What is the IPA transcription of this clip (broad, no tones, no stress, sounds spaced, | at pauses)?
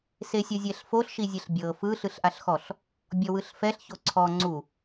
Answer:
s e sʲ ɤ zʲ ɛ ɬ f o ɬ ʃ i zʲ ɛ ɬ bʲ ɤ f ɯ ɬ ɯ ɬ ʔ a ɬ x ɔ ɬ | bʲ ɔ w ɯ ɬ f ɛ ɬ ç o ǀʰ ɔ ŋ͡ǀ u